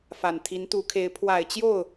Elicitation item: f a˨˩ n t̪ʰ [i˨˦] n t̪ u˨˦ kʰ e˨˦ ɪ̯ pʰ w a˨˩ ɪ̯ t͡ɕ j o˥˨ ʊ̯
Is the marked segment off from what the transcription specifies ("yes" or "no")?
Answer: no